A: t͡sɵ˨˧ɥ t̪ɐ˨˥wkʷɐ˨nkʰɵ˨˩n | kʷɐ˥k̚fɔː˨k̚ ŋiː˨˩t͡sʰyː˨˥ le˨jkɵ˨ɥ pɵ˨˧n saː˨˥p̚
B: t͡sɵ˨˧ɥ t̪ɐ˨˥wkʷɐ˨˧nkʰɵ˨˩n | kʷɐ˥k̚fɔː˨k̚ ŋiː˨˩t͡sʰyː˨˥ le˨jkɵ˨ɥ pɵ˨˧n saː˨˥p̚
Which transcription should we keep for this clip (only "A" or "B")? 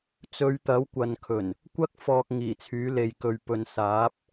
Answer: A